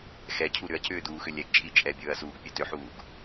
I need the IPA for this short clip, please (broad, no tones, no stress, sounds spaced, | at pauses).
x ɛ cʰ u ɾ ʏ ɐ̯ cʰ ʏː d uː x ʏ lʲ ɛ ɡ t͡ʃʼ i t͡ʃʼ ɛ bʲ ɵː ɐ̯ s uː ɡ pʲ ø t ø ħ uː ɡ